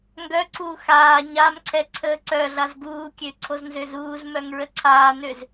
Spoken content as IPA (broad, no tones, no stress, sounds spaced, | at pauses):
ŋ ɡ œ ǀ uː x aː ɲ a m ǀʰ ɛ ǀʰ əː ǀ œ ɮ a z ɡ uː kʲ ø ǀʰ o z n z ø z uː z m œ ŋ ɹ ə ǀʰ aː n ø z